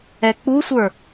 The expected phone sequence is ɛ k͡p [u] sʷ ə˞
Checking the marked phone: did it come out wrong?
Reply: no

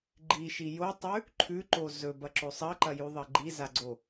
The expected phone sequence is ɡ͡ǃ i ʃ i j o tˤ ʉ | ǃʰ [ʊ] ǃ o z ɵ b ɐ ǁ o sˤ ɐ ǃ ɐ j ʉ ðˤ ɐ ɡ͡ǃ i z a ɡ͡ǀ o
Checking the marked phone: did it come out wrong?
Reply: yes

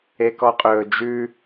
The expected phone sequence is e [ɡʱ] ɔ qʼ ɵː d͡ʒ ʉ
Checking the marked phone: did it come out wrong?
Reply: yes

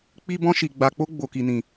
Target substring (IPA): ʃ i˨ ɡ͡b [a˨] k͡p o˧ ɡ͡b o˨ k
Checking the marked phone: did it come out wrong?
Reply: no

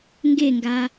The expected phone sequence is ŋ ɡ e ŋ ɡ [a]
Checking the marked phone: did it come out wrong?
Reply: no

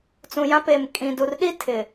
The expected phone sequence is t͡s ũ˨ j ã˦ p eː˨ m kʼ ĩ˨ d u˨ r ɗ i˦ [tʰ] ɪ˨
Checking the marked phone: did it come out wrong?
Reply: no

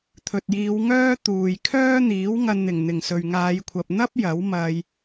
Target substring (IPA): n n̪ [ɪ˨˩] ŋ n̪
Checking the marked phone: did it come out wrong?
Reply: no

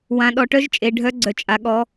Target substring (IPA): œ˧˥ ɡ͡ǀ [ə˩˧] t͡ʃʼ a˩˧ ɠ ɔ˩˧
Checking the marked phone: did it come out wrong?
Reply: yes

